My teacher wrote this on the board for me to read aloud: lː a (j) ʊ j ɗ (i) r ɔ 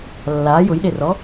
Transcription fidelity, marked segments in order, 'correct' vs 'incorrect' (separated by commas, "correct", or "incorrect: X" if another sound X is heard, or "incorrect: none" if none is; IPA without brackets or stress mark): correct, incorrect: e